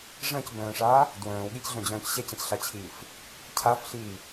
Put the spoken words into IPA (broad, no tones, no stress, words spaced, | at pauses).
ʐə̃ːcbœ̃ːʂaː | dwœ̃ːwɠicɮœ̃d͡ʑœ̃ːc ɕɛcə̃cɬat͡ɕʰiːf | cʰafɬiː